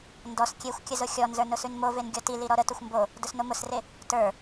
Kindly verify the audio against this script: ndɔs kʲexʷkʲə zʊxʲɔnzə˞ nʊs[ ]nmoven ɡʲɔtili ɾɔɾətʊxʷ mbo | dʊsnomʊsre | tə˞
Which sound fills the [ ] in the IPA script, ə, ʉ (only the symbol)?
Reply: ʉ